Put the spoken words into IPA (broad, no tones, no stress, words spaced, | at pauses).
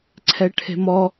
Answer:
ǀʰɛʈʰe̤mɔ